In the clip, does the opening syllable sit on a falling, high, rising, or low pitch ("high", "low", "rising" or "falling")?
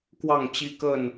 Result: falling